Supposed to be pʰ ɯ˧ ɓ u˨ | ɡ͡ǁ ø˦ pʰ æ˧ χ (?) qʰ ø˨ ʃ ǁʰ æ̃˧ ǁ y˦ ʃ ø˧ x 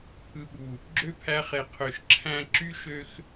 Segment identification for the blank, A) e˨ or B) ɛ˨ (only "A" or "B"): A